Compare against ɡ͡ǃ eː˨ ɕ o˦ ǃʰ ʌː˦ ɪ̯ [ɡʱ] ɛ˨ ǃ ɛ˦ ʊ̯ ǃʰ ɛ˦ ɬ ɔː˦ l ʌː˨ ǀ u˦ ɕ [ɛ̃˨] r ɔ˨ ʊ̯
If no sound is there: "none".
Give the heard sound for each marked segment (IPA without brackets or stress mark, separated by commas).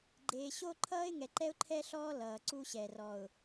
ŋ, ɛ˨